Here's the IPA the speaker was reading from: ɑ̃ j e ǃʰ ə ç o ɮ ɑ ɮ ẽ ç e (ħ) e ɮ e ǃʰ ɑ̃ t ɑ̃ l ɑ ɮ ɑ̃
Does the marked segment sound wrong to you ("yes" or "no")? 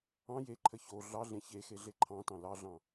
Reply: yes